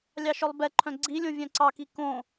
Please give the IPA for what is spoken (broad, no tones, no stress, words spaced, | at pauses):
lʲɑʃœlˠbɛǃʰœ̃ ɡ͡ǀilʲõ vʲœ̃ǀɑki kõ